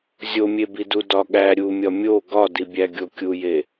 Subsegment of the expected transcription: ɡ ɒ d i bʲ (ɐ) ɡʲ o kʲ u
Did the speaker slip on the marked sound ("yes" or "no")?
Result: yes